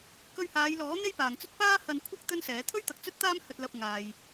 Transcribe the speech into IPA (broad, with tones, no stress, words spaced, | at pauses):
kɵ˧ɥhaː˨˧jlɔː˨˥ n̪e˥jpaː˨ŋt͡sɵ˥t̚ paː˥hɐ˧nkʷʰɐ˥k̚ t̪ɵ˥nsɛː˨˥ t̪ʰɵ˥ɥt̪ɐ˨k̚ t͡sɵ˥t̚t̪aː˥mhɵ˧t̚lɐ˧p̚ ŋaː˧j